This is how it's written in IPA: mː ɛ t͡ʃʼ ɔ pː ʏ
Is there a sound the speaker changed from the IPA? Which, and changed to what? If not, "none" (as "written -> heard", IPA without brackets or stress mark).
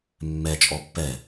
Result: ʏ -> ɛ